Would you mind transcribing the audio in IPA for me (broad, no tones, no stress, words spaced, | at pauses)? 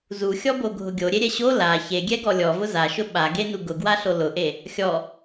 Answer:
zuxʲɔboɡʱʊ ɡʲoɾʲeɾʲɛ ɕo la çeɡʲɛɡɔ lʲɔvʊ zaʃʊ ɓaɡenu ɡʊɡwaɬo lʊʔe | xʲɔ